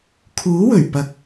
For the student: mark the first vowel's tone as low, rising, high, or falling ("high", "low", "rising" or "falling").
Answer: rising